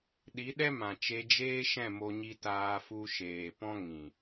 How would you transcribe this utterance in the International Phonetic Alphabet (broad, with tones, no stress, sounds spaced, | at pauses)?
ɗ i˨˦ ɗ ɛ˦ m ã˨ t͡ʃ e˧ d͡ʒ eː˦ ʃ ɛ̃˦˨ m o˧ ɲ i˧ t aː˧ f u˧ ʃ eː˨ p ɔ̃˦ ŋ ĩ˨